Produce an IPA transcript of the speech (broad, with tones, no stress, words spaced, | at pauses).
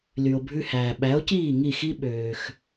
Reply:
ly˩o̯bʱʉ˧hæː˩ ɓæ˩˥o̯ciː˥˩ ŋi˥˩xi˥ ɓøː˩x